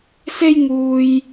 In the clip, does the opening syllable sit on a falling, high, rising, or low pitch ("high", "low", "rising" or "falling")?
high